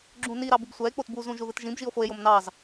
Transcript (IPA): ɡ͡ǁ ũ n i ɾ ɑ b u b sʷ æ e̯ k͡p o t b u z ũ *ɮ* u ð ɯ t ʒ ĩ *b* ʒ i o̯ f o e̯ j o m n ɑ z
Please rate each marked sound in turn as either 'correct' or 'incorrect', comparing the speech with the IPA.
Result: incorrect: ʒ, correct

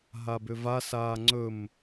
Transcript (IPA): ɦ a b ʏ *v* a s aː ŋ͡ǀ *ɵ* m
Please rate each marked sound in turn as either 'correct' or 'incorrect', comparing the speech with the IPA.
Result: correct, correct

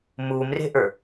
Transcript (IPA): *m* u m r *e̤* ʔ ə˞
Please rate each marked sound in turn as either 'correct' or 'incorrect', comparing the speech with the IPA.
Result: correct, correct

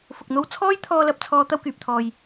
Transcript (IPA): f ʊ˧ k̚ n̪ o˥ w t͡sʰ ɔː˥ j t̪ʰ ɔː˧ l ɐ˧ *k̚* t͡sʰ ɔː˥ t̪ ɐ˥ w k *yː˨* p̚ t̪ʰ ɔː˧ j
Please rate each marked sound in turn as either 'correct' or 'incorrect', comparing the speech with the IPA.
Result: incorrect: p̚, correct

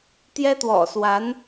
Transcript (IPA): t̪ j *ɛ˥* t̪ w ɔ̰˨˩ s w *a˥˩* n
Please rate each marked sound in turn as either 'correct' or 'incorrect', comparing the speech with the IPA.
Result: correct, incorrect: a˧˥

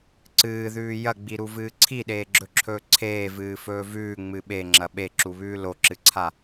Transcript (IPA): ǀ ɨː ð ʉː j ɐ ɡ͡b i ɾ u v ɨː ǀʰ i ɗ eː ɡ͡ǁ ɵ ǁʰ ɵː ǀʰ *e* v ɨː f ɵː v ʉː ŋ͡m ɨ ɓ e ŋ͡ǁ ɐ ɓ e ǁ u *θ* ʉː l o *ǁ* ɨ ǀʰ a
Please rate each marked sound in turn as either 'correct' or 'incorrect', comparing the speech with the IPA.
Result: incorrect: eː, incorrect: β, correct

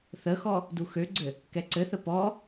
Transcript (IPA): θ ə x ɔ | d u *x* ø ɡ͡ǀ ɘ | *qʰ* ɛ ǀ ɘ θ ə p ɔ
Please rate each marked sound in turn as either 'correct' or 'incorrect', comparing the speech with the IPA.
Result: correct, incorrect: k

